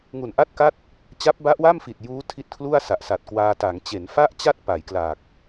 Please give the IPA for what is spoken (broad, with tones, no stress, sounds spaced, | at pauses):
ŋ u˨˩ n ʔ a˥˩ t̚ k a˥˩ t̚ | t͡ɕ a˦˥ p̚ b a˦˥ ʔ w a˥˩ m f i˨˩ t̚ j uː˦˥ tʰ i˦˥ t̚ kʰ l u˥˩ a̯ s a˨˩ ʔ s a˨˩ t̚ k w aː˧ t a˩˦ ŋ t͡ɕ e˩˦ n f a˥˩ ʔ t͡ɕ a˥˩ t̚ p a˩˦ j k l a˨˩ k̚